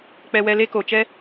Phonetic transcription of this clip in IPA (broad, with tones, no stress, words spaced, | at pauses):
k͡pɛ˧wɛ˧ le˦ko˨t͡ʃɛ˦